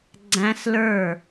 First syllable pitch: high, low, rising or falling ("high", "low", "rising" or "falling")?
high